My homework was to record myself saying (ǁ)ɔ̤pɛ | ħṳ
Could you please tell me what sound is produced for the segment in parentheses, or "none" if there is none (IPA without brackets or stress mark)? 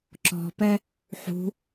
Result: ǁ